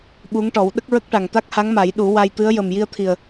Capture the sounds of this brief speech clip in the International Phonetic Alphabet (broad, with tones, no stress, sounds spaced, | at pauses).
ɓ u˧˥ ŋ ʈ ɔ˨˩˦ w ɗ ə˦˥ k̚ ɹ ə˦˥ k̚ ʈ a˨˩ ŋ t̪ a˦˥ k̚ h a˧˥ ŋ m a˨˩˦ j ɗ u˨˩˦ w a˧ j t̪ ɨ˧˥ ə̯ j ə˨˩ m j i˧ ə̯ t̪ʰ i˨˩ ə̯